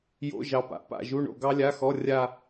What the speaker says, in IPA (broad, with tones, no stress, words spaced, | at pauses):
jo̰˧˥˧ʒɑ˨pa̰˨˥ pa̰˦˨ʒu˧˥˧ɳo̰˦˨ ɡɑ˥lʲa˧˥˧xɔ˧˥˧ rʲa˦˨